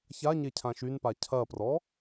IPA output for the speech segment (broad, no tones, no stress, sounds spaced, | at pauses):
ç a ɲ e cʰ ã ʃ y n p a cʰ ɐ p r ɔ